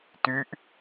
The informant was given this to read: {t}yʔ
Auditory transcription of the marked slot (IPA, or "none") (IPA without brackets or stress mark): t